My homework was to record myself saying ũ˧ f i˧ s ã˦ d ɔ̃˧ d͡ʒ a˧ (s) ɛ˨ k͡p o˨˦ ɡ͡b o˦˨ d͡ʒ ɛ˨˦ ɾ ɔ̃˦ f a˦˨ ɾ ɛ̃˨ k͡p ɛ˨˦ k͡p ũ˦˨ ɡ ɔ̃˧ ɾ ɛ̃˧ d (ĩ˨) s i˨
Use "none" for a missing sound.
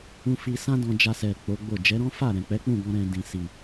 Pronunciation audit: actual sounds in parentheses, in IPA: s, ĩ˨

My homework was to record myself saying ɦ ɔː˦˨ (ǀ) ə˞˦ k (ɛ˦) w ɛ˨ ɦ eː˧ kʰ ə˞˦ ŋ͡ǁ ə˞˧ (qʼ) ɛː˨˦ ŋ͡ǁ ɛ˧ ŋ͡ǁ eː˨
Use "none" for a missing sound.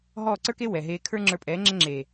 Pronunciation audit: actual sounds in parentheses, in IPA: ǀ, e˦, pʼ

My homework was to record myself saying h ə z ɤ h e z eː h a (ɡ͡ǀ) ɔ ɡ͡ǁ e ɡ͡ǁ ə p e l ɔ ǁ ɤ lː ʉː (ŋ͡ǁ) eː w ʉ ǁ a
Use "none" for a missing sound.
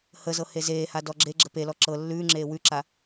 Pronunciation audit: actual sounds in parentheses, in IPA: d, ŋ͡ǁ

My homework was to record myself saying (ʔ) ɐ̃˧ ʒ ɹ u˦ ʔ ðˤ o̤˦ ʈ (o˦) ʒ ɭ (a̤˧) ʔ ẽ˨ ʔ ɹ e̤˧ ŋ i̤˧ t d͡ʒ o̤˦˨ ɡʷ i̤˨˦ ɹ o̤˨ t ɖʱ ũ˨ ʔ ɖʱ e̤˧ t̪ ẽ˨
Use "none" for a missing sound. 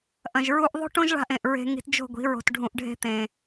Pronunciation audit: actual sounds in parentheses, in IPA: ʔ, õ˦, a̤˧

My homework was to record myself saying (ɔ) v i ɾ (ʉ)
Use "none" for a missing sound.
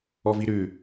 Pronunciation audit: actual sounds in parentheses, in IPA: ɔ, ʉ

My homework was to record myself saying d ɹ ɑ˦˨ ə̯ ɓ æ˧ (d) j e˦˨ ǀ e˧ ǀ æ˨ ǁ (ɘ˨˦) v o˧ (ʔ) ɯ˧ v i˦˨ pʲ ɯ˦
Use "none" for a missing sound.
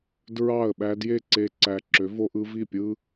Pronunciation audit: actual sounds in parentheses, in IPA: d, ø˨˦, ʔ

